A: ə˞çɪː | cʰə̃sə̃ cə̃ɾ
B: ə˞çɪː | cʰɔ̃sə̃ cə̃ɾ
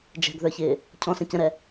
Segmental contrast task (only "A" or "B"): B